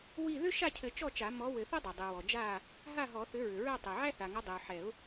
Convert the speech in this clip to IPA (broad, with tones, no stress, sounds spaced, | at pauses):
w i˥˨ ð ʏ˥ ʃ a˥˨ cʰ ɘ˨˩˦ t͡ʃ ɔ˥˨ t͡ʃ a˨˩˦ m ɔ˨˥ w ɘ˨˩˦ θ ɛ˥ dˤ i˩ dˤ i˩ w ɔ˩ d͡ʒ a˥˨ | ɦ a˥˨ ɦ ɔ˨˩˦ θ ʏ˨˥ ɹ ʏ˩ ɹ ɛ˥˨ tˤ i˩ ʕ æ˥ θ a˩ ŋ ɐ˨˥ dˤ i˩ ʊ̯ ħ ɛ˨˩˦ ʊ̯